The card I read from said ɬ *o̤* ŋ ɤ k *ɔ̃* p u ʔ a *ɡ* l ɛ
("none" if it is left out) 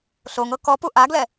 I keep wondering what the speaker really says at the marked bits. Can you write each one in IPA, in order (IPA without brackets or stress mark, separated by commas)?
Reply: o, ɔ, ɡ